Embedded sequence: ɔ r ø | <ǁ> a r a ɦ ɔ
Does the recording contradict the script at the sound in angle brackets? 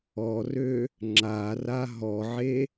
yes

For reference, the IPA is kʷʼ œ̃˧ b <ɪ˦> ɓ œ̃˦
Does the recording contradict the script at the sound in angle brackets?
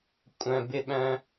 no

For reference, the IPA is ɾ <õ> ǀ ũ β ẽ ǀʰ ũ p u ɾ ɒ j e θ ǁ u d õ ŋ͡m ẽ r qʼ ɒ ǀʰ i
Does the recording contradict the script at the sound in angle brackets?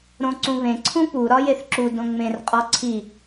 no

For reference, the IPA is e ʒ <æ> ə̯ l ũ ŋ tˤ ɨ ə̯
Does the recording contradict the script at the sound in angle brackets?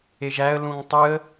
no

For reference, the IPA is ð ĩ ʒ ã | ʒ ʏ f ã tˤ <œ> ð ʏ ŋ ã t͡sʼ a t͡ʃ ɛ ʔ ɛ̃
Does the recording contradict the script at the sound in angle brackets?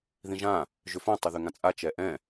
yes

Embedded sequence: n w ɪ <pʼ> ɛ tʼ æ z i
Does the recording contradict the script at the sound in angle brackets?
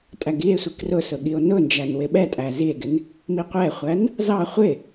yes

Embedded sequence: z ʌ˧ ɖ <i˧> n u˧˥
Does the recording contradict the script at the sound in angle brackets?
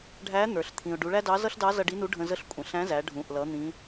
yes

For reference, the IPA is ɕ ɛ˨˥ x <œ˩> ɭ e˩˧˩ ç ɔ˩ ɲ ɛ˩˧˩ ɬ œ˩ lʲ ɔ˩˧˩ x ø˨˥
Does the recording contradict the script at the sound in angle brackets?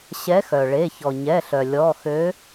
no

